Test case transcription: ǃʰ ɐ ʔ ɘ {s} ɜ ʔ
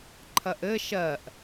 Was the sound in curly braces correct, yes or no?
no